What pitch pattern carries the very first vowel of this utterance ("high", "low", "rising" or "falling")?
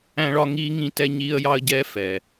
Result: high